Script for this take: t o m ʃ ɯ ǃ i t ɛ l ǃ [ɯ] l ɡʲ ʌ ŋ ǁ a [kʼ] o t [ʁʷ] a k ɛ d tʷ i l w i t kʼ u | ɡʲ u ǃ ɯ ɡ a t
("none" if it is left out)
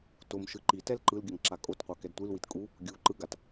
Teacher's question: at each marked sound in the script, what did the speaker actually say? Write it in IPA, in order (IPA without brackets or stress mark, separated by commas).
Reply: ɯ, kʼ, qʷ